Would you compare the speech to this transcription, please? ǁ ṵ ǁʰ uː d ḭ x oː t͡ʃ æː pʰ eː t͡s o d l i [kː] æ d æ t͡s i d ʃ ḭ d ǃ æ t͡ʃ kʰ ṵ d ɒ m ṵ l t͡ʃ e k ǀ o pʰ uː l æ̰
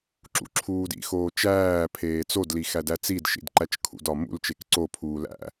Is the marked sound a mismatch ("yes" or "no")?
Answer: yes